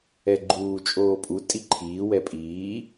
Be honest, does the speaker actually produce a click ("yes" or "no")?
yes